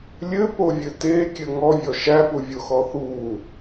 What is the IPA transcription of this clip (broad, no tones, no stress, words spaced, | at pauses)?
lʲɘpovʲɘ tekʲɘ ŋɔvʲɔ ʃæpuvʲoxɔ θu